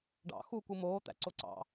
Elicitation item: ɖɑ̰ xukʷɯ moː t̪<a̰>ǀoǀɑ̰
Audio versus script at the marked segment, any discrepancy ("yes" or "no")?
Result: yes